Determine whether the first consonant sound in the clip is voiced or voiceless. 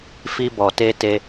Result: voiceless